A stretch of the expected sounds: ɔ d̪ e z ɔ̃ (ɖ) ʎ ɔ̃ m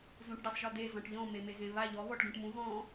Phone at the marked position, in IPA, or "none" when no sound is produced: ʈ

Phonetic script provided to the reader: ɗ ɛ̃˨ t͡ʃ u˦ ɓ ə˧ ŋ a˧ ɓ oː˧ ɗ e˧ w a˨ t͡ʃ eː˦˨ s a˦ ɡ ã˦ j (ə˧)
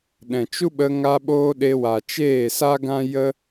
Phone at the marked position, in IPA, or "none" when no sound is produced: ə˦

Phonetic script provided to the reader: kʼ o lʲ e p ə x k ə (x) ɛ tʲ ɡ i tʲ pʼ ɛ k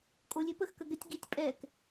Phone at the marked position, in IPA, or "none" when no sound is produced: ɡ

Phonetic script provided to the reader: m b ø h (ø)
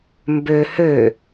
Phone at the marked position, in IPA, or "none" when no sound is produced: ø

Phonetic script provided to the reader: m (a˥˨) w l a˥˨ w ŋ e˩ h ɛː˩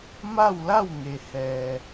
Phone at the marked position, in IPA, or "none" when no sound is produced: a˥˨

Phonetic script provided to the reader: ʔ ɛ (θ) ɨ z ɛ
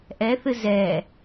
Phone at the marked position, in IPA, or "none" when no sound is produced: θ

